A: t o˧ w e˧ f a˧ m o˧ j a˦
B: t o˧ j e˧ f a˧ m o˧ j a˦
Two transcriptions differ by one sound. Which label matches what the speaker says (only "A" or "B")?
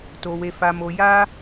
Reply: A